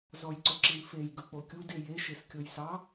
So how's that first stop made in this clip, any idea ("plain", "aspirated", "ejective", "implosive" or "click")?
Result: click